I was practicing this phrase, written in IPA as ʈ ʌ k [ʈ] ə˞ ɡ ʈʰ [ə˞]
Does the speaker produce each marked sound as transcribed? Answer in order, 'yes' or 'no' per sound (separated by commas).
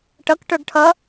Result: yes, no